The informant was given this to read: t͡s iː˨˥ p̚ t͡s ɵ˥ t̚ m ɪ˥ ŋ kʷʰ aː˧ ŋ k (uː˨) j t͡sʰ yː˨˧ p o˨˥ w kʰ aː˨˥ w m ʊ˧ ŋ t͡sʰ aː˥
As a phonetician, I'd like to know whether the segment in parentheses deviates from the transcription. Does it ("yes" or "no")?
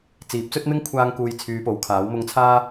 no